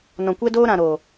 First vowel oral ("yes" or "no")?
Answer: no